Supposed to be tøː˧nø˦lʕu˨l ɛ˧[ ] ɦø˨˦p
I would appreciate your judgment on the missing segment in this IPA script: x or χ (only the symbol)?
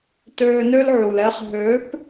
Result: χ